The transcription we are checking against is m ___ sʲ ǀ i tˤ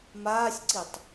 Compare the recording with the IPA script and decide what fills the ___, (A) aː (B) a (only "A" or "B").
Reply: A